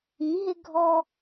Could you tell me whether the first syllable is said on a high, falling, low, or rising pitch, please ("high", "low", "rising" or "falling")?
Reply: rising